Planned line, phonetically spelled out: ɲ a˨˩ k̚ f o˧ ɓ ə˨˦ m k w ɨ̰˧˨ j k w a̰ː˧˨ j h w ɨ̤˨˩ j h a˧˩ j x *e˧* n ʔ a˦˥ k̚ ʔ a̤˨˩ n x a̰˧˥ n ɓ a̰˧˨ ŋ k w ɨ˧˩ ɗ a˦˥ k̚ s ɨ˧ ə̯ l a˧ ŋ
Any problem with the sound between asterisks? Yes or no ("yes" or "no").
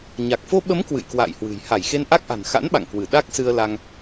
no